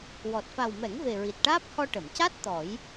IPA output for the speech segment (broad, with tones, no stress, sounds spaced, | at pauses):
w ɔ˨˩ t̚ f a˨˩ w m ɛ˨˩˦ ŋ v e˨˩ ɹ i˨˩ t̚ ʈ aː˦˥ p̚ h ɔ˧ ʈ ə˨˩˨ m c a˦˥ t̚ t̪ ɔ˨˩˦ j